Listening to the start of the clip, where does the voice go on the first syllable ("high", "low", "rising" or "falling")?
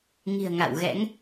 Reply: low